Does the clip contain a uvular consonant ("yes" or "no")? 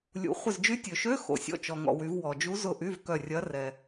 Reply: yes